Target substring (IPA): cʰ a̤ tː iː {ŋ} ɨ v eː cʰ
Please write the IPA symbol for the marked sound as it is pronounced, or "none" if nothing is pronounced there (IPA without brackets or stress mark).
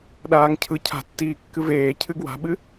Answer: kː